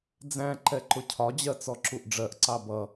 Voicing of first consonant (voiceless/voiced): voiced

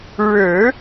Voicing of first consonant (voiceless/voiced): voiced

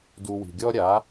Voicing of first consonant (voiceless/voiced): voiced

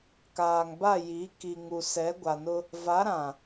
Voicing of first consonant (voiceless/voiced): voiceless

